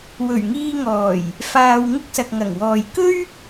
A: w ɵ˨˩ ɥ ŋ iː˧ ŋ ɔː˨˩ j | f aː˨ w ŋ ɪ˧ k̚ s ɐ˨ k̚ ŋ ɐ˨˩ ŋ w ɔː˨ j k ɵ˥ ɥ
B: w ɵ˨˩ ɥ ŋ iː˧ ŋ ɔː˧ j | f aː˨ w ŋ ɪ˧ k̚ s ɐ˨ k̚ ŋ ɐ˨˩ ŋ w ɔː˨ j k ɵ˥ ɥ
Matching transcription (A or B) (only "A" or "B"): A